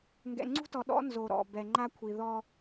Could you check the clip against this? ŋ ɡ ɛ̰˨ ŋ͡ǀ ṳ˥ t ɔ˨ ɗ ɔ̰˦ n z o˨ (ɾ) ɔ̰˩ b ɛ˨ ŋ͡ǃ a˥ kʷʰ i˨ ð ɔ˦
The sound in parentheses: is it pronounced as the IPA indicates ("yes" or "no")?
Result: yes